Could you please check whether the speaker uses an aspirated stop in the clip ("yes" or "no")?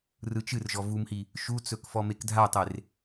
no